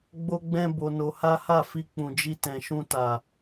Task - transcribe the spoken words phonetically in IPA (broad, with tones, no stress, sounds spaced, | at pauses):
ɡ͡b o˦ ɡ͡b ɛ̃˦ b o˧ n o˧ h a˦ h a˦˨ f i˧ k͡p ũ˨ d͡ʒ i˧ t ɛ̃˨ ʃ ũ˧ t a˨